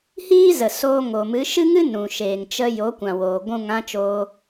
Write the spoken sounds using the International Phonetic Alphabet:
hiː˦ zə˨soː˧ ŋo˨mɨ˨˦ ʃɨ˦ŋɨ˦ nũ˨ ʃeː˨ŋt͡ʃə˧ jo˨˦kʷã˨ woː˨ɡʷũ˦˨ŋ ã˦t͡ʃoː˧

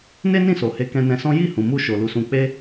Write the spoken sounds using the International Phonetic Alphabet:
ne˦nĩ˦˨so˨he˨˦ kɛ̃˧nɛ̃˧sɔ̃˦ ji˦˨hũ˨mu˧ ʃo˨ lu˨˦sũ˧k͡pe˦

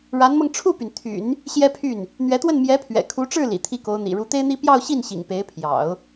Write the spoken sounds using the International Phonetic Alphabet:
ɻa˧˥nmɤ˧ŋ ʈ͡ʂʰu˥˩py˩nt̪ʰy̰˨˩˦n | ɕjɛ˥pʰy˥˩n | n̪ɥɛ˧˥t̪wə˥˩n mjɛ˧˥pʰɥɛ̰˨˩kʰu˧˥ʈ͡ʂɻ̩˥˩ lḭ˨˩t̪ʰi˥˩ko˧˥ʊ̯n̪ḭ˨˩ ɻu˧˥t̪e˥ɪ̯n̪i˥ pjɑ˥˧ʊ̯ ɕi˥˩nɕḭ˨˩ŋ pe˧˥ɪ̯pʰjɑ̰˨˩˦ʊ̯

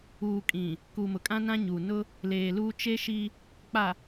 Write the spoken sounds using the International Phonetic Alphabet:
uː˨kʼĩ˨ | kuː˨mʊ˨ kʼã˦nã˦ɲuː˨ nʊ˦ | leː˨luː˦ t͡ʃe˦ʃi˦ | k͡pa˨

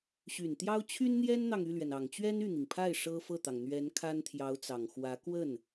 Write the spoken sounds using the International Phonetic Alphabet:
ɕy˨˩nt̪jɑ˥ʊ̯ t͡ɕʰy˥nn̪jɛ˥nn̪ɑ˨ŋ y˥˩lɥɛ˩n ɑ˨˩ŋt͡ɕɥɛ˥n y˥˩n̪i˩ŋpʰa˥˩ɪ̯ ʂɤ˥fɤ˥˩t̪ɑ˩ŋ n̪ɥɛ˧˥n kʰa˥nt̪ʰjɑ˧˥ʊ̯t͡sɑ˨˩ŋ xwä˧˥ kwə˥˩n

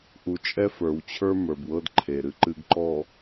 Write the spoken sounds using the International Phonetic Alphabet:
ʔu˨t͡ʃʼɛ˦fə˞˨wt͡ɕʰə˞˦ mə˞˨bwɤ˦dǃʰe˨ɾɨ˦ ǃɨ˨ɡǃɔ˨

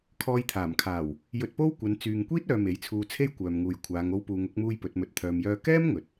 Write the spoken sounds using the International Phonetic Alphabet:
kʰɔː˧jt̪ʰaː˨˩mkʰaː˨˩w | jɵ˧t̚po˥wkʷɐ˨˧n t͡syː˨ŋkʷiː˥t̚œː˨ me˨˥jt͡sʰuː˧t͡sʰe˥j kʷœː˨mŋuː˨jkʷʰaː˨˧ŋ o˧wpuː˨ŋʊ˨˥k̚muː˧j pɵ˨˥t̚mɵ˧t̚t̪ʰœː˧mjœː˥ kɛː˥m ŋɵ˨t̚

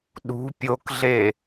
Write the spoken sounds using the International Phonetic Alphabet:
ɗṳ pʲokɮe

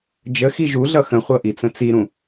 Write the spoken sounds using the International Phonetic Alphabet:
d͡ʒə xiʒuɮʌ xə̃χʷɤ ʔit͡sə̃t͡siɾũ

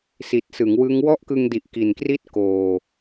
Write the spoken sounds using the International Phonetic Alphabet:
si˨˩t̚sɯ˩˦ŋwɯ˦˥ŋ wɔ˥˩ʔkɯ˧ŋdi˨˩ʔ ki˨˩nkri˥˩t̚koː˨˩

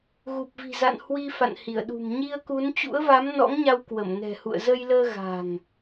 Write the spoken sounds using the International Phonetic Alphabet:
ɣu˨˩p̚vi̤˨˩za̰˧˨n hwi˧ fa̰˧˨nhi˧˩ə̯ɗṳ˨˩m ɲi˧ə̯ku˨˦n t͡ɕṵ˧˥ə̯va˨˦m nɔ̰˧˥ŋɲa˧w kwə˧˩mnɛ̤˨˩hṵ˧˨ə̯ zə˧jləː˧ ɣa̤˨˩ŋ

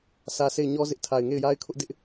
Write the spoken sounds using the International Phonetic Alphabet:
sʰä˦ sʰe˦˨ɪ̯ɲɔ˦zɪ˦ʔ tʰa˨ɪ̯ŋe˦˨ɪ̯ja˦ɪ̯kʰʊ˦ʔ dɪ˦ʔ

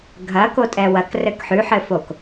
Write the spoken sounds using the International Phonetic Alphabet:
ɡʱɐko tʼɛwɐk rɘkħʉħɘfok

